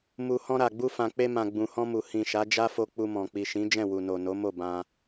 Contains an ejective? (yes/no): no